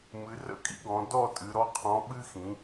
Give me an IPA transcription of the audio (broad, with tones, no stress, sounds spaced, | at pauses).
m ɨ˩˧ r ə̰˥˧ kʼ ḭ˥ ɡ ɔ̃˩˧ d ɔ˥˧ tʼ ɨ˩˧ ɾ ɔ˨˥ qʰ ɔ̃˨˥ ɓ ɨ˥ x ĩ˩˧